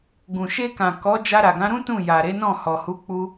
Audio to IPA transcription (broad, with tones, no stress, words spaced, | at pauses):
ɡũ˨ʃe˧kã˨ kɔ˨˦ d͡ʒa˧ɾa˨ɡã˨˦ɾũ˦ tũ˦˨ja˨ɾe˨˦nɔ̃˦˨ hɔ˨hu˨˦ k͡pu˧